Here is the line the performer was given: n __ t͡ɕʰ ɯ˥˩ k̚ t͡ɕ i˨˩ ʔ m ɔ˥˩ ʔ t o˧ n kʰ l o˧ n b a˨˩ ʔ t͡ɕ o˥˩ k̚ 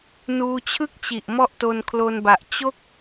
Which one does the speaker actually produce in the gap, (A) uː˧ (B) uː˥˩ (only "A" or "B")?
A